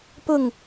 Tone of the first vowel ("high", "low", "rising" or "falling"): falling